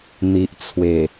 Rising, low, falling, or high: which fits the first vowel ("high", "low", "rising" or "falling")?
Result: low